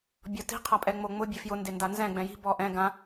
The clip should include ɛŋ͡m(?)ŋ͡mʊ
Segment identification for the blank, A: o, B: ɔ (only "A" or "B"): A